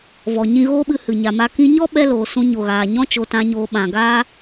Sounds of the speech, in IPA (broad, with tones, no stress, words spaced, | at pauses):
vɔ˨ ɲĩ˧ɣoː˦ɓɨ˧ hɨ˨ɲa˨ma˦ kĩ˧ɲɔ˦ɓɛ˧ loː˨sũ˧ɲo˨ɣaː˨ ɲɔ̃˧t͡ʃo˨tã˨ɲoː˨ ɓã˨ ɡaː˦